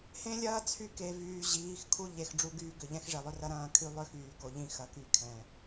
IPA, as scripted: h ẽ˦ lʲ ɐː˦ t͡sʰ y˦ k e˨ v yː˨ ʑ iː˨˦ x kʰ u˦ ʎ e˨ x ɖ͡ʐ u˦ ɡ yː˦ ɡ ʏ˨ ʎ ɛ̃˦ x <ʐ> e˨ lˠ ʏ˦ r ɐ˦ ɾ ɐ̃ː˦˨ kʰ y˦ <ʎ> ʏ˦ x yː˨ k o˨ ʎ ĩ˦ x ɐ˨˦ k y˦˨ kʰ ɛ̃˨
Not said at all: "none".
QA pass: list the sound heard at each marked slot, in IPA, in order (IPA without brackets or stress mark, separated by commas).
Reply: ʐ, lˠ